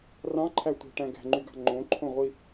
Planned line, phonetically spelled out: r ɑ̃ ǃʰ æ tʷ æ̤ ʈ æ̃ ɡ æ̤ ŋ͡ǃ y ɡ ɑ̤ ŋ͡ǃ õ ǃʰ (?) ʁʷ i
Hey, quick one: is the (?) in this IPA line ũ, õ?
õ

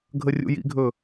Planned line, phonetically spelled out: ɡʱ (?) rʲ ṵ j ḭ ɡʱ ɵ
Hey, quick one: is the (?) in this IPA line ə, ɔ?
ə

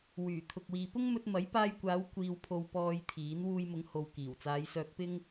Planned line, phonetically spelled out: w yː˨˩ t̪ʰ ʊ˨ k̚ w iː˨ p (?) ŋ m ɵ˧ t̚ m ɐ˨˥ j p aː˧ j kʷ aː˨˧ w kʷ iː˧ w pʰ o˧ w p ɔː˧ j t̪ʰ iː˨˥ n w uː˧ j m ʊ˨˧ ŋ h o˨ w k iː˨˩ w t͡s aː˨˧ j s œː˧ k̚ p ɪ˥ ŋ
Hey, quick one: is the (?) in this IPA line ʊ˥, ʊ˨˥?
ʊ˥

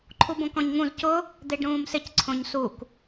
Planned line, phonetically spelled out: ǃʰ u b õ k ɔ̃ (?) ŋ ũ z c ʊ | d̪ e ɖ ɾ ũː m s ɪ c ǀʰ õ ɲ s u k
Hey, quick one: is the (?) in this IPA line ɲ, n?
ɲ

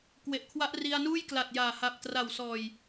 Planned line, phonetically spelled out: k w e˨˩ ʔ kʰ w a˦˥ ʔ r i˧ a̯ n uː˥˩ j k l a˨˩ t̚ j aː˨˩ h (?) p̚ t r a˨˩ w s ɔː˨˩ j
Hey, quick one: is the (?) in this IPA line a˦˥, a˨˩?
a˨˩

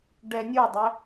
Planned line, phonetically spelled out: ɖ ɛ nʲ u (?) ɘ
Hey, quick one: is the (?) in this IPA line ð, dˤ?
dˤ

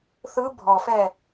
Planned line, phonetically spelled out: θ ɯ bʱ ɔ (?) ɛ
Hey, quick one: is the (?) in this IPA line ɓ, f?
f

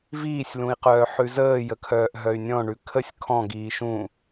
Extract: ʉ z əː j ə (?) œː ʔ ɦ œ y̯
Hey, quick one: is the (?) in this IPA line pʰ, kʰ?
kʰ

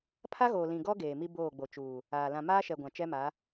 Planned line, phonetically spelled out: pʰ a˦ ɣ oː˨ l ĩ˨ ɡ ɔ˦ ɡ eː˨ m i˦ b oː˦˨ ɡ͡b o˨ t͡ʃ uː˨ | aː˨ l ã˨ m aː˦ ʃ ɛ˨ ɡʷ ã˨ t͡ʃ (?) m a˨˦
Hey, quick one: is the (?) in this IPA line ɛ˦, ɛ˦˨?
ɛ˦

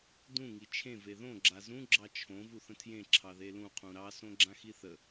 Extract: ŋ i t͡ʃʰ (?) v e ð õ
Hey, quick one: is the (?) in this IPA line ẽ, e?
ẽ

